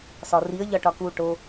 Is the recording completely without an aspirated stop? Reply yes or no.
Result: yes